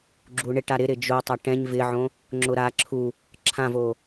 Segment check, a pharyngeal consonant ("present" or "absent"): present